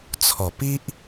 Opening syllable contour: low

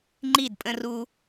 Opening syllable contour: falling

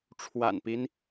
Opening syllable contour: low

